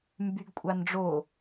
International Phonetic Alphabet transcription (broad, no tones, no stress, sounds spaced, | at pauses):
m b y ɡ kʷʼ a n ɖ͡ʐ o